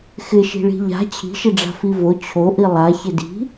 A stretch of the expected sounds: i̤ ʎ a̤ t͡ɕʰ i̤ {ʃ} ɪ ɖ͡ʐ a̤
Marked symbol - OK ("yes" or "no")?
yes